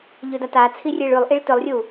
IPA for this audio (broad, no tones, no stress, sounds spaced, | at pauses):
ʎ ɵ d a t a t͡sʰ i rʲ e ɭ ʉ lˠ ʔ i ɭ t ɵ lˠ rʲ u